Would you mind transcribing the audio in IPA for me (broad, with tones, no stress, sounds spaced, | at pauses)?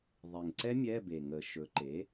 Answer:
ðˤ e˨˩ ŋ ǀ ɛ˦˥ mʲ ɛ˧˥˧ b e˨˩ ŋ ə˨˩˦ ʃ ɵ˩˥ ǃ e˩˥